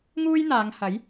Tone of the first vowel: high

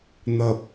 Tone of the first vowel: low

